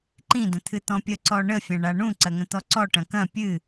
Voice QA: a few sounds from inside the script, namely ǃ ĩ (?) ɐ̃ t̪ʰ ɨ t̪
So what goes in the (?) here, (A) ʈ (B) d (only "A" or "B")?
B